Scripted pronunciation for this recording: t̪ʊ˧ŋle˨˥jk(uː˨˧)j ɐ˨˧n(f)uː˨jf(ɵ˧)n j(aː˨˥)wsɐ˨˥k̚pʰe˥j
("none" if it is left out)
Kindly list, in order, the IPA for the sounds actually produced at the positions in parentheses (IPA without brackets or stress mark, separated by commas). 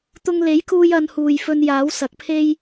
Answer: uː˧, h, ɵ˧, aː˨˥